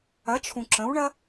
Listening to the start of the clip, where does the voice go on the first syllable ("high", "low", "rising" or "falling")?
rising